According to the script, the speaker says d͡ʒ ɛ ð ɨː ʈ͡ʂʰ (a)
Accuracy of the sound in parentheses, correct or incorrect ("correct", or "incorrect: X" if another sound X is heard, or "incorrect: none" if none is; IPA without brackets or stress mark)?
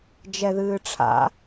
incorrect: a̰